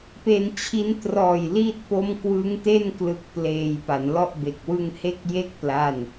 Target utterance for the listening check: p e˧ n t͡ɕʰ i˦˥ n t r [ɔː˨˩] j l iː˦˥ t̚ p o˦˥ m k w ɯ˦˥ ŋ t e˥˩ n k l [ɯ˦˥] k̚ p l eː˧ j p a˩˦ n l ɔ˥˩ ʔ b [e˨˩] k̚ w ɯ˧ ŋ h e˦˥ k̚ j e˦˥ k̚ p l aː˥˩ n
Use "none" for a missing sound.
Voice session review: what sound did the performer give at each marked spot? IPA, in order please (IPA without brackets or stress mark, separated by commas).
ɔː˨˩, ɯ˦˥, e˨˩